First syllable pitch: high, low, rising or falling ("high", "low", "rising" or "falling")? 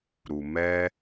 low